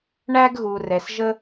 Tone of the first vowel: high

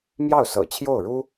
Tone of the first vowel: falling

